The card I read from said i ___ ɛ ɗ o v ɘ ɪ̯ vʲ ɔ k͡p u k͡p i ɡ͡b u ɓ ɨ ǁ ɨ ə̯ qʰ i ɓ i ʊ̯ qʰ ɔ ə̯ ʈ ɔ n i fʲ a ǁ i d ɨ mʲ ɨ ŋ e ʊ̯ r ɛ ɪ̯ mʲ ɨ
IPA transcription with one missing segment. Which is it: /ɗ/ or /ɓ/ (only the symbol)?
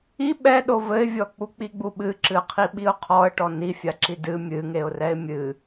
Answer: ɓ